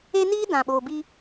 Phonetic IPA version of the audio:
e˦ n iː˦ d ã˨ ɓ oː˨ b i˦

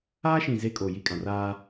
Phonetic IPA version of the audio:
aː˦ ʃ ĩ˨ z e˦ kʼ o˨ j i˦ kʼ ã˨ r aː˦

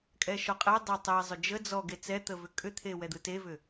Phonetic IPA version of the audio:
kʼ ɛ ʃ ɔ qʼ ɛ dˤ e tˤ ə e̯ zˤ ʏ d͡ʒ ə d͡z ɔ ɡ e t͡s ɛ t̪ ə v ʏ kʼ ʏ t̪ʰ e w ɛ d̪ ɯ t e v ʏ

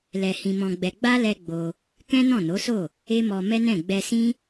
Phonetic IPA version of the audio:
l ɛ˧ h ĩ˧ m ɔ̃˧ ɡ͡b ɛ˧ ɡ͡b a˦ l ɛ˧ ɡ͡b o˧ | k ɛ̃˦ n ɔ̃˦˨ n o˨˦ s o˦˨ | e˦ m ɔ˧ m ɛ˦ n ɛ̃˦˨ ɡ͡b ɛ˧ s ĩ˦

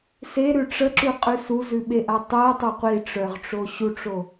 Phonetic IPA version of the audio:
s e ɾ ʉ ʈ͡ʂ ə ǁ ʉ qʼ ʉ s u z ʉ ɓ e ʔ a tˤ ɜ tˤ o qʷ i ʈ͡ʂ œ ʁ ʈ͡ʂ o ɕ u ʈ͡ʂ o

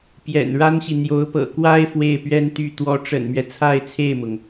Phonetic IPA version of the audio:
p j ɛ̰˨˩ n ɻ a˥ n ɕ i˨ n̪ j o˧˥ ʊ̯ p ɤ̰˨˩ k w a˥ ɪ̯ f w e˥˩ ɪ̯ p ɥ ɛ˥ n t̪ y˥˩ t̪ w ɔ˧˥ ʈ͡ʂ ə̰˨˩ n m ɥ ɛ˦ t͡sʰ a˥˧ ɪ̯ t͡sʰ e˥˩ ɪ̯ m ʊ˩ ŋ

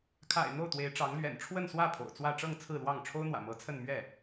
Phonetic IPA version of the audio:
kʰ a̰˨˩ ɪ̯ n̪ o˥˩ ʊ̯ t̪ w e˧˥ ɪ̯ ʈ͡ʂ ɑ˧˥ ŋ l ɥ ɛ̰˨˩ n ʈ͡ʂʰ w ə˥˧ n s w ä˥˩ pʰ o̰˨˩ ʊ̯ t͡s w ä˥˧ ʈ͡ʂ ɤ˥˧ ŋ t͡sʰ ɹ̩˥˧ l w ɑ˥˩ ŋ ʈ͡ʂʰ o˥ ʊ̯ n̪ w ä̰˨˩ m ɤ˧˥ t͡sʰ ə˥˧ n m ɥ ɛ˥˩

